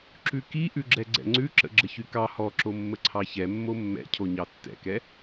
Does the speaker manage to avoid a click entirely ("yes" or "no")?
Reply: no